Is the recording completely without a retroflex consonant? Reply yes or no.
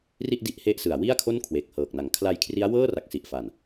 yes